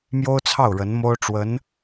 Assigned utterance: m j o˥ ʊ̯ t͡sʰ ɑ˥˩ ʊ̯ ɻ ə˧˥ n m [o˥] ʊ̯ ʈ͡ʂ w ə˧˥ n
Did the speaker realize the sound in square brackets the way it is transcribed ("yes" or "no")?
yes